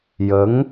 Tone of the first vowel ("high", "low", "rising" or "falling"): rising